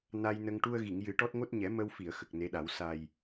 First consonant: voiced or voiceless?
voiced